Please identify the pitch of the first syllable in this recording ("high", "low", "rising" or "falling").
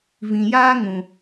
low